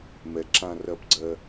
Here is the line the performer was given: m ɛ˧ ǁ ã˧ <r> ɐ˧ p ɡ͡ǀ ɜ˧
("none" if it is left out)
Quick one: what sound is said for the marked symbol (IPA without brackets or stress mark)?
r